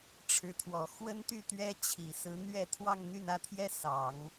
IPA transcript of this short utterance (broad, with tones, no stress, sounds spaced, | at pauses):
ʈ͡ʂʰ ɻ̩˧˥ t̪ʰ w ɔ˨˩ x w ə˥ n t̪ y˥˩ t̪ ɥ ɛ˥ t͡ɕʰ i˨˩ s ɹ̩˧˥ n̪ ɥ ɛ˥˧ t̪ʰ w ɑ˥˧ ŋ n̪ y˥˩ n ä˥ t̪ʰ j ɛ˥ s ɑ˨˩˦ ŋ